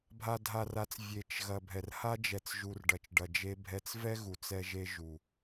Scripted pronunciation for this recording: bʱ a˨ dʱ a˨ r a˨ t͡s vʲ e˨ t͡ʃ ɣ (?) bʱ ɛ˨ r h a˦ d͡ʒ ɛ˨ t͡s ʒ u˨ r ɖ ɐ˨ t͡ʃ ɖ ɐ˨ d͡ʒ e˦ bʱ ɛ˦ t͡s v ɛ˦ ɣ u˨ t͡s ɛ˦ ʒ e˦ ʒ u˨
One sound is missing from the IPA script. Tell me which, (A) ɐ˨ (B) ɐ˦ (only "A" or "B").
A